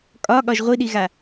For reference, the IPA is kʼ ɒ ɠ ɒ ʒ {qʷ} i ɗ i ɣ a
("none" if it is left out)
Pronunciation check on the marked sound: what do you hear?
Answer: ʁʷ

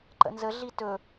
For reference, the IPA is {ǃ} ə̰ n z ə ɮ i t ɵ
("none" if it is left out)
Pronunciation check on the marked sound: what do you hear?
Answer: ǃ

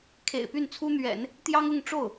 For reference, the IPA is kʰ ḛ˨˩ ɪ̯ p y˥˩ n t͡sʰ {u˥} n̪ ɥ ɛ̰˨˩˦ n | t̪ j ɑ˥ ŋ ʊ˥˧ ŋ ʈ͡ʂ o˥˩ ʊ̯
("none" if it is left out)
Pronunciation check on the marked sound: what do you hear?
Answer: u˥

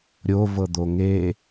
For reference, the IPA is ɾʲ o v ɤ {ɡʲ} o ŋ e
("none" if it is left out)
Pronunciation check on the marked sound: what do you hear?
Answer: d̪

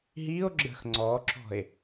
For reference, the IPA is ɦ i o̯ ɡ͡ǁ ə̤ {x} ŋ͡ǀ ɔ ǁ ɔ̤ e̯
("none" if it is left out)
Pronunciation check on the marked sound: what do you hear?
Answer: x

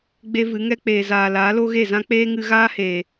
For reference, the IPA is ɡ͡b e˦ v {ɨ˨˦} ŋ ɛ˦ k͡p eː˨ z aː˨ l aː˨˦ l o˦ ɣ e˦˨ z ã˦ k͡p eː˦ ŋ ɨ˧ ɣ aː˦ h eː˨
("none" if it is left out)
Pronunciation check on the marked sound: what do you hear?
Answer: ɨ˨˦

